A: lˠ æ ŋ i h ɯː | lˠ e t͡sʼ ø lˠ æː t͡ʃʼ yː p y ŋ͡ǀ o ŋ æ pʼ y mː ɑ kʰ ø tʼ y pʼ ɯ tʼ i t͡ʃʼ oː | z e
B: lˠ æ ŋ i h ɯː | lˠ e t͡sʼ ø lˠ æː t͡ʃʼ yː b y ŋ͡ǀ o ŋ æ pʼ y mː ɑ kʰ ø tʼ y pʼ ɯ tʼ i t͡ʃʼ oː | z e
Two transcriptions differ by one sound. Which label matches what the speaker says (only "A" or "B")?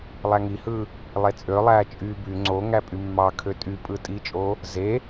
B